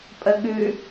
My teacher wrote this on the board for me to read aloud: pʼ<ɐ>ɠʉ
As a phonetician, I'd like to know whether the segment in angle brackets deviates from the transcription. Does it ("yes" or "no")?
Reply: yes